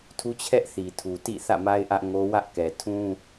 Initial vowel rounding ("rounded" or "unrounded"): rounded